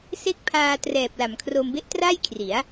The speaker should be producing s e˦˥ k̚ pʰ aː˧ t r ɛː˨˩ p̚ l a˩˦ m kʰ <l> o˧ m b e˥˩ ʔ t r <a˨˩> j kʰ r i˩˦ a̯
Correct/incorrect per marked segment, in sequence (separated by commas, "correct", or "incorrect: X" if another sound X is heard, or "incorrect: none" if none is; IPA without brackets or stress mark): incorrect: r, incorrect: a˥˩